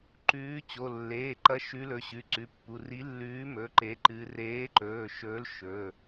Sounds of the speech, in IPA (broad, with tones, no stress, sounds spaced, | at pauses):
ǃ ʉː˨˥ t͡ɕ o˩˧˩ lː eː˩˧˩ ǃ ɐ˨˥ ʃ ʉ˨˥ l ɵ˩˧˩ ɕ ʉ˩˧˩ ǀ ʉ˩˧˩ pː u˩˧˩ r i˨˥ lː ʉː˨˥ m ɵ˩˧˩ ǃ e˨˥ ǃ ɨ˨˥ r eː˨˥ ǃ ɵː˩˧˩ ʃ ɵː˨˥ l ʃ ɵ˩˧˩